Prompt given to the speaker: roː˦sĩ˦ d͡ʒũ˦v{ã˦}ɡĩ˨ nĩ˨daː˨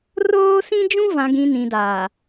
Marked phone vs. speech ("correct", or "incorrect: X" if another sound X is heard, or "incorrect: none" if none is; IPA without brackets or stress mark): incorrect: ã˨